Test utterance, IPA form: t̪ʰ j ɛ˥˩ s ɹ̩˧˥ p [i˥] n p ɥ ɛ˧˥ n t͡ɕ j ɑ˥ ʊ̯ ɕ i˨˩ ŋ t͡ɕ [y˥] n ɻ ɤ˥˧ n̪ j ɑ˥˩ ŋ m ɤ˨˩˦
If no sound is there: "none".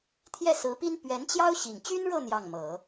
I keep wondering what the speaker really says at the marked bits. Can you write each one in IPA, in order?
i˥, y˥

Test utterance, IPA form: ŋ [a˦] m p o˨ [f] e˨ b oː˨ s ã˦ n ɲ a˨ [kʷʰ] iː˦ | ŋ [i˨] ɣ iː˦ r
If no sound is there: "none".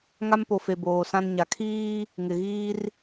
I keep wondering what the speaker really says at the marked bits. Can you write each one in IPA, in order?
a˦, f, kʰ, ɪ˨

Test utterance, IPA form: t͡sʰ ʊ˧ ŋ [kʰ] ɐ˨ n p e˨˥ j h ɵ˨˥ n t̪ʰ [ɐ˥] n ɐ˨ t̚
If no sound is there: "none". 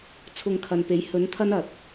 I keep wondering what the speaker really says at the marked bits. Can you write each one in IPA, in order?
kʰ, ɐ˥

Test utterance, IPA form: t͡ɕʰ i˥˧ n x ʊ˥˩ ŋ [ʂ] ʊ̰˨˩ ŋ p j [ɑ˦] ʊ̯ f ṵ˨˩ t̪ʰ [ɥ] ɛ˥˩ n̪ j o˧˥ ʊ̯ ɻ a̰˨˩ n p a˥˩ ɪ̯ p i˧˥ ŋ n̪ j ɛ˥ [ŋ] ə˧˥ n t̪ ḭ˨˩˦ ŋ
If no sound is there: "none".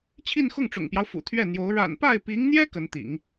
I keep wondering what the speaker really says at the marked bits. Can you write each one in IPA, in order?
ʈ͡ʂ, ɑ˦, ɥ, k

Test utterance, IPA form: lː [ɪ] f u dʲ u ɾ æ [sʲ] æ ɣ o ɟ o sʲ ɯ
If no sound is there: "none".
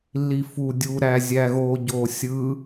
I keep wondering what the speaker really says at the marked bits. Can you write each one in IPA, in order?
i, zʲ

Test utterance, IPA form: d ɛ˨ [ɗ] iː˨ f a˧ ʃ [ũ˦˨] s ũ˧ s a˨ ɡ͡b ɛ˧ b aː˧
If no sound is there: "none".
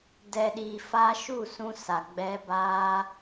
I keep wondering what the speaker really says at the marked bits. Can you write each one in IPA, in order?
ɗ, u˦˨

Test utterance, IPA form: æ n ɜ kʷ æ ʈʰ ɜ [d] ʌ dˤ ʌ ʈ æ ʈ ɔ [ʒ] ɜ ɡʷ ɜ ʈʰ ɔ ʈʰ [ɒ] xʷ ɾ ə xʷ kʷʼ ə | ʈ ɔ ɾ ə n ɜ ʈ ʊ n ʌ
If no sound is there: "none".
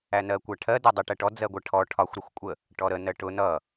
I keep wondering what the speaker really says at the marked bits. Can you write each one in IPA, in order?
d, d͡z, ɒ

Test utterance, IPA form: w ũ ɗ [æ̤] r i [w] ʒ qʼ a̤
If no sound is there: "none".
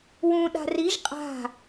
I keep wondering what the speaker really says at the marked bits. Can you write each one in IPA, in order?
a̤, none

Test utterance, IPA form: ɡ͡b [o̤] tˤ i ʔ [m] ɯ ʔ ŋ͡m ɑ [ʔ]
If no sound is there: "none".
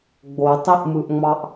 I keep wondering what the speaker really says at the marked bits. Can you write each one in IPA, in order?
o, m, ʔ

